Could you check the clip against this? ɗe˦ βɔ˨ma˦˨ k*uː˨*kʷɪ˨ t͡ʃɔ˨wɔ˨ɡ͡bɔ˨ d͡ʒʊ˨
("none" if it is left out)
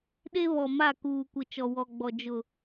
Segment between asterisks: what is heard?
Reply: uː˨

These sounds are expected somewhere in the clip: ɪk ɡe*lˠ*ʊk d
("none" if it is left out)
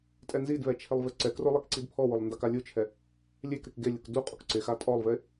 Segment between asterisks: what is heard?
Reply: lʲ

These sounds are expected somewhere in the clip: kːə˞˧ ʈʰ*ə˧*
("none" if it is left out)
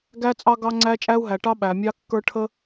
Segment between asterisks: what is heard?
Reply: ə˧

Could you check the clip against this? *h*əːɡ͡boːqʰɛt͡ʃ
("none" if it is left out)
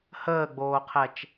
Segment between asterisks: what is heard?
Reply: h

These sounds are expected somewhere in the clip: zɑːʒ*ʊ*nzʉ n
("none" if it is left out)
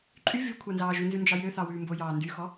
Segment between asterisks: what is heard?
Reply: ʉ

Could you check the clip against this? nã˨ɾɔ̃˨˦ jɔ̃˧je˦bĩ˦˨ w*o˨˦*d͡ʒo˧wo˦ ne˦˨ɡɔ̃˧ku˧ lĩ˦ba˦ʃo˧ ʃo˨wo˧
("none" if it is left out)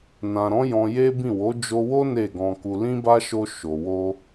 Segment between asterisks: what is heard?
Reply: o˨˦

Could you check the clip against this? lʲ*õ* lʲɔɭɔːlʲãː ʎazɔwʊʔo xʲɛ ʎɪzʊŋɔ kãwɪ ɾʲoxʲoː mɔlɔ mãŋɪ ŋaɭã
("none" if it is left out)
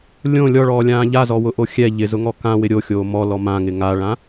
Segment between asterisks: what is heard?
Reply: õ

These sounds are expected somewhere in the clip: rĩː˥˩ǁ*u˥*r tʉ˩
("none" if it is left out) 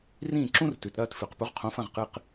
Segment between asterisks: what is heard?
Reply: ũ˥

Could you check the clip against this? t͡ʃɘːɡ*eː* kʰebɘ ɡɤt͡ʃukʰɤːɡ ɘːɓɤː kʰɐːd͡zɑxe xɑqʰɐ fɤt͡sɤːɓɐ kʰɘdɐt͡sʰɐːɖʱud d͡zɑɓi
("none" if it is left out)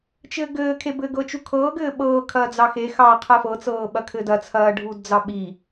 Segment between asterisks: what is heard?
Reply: ɘː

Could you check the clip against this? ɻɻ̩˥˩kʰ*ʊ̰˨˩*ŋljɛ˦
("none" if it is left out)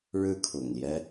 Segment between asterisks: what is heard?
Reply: ʊ̰˨˩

